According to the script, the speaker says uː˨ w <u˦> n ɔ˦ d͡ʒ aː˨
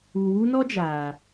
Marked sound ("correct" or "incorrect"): correct